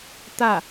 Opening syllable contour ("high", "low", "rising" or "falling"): falling